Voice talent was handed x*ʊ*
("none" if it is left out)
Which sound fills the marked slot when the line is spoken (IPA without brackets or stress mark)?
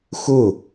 ʊ